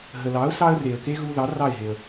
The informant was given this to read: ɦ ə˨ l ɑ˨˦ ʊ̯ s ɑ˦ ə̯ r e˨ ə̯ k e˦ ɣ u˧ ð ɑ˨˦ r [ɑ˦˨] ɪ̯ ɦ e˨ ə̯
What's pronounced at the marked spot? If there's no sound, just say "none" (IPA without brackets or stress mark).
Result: ɑ˦˨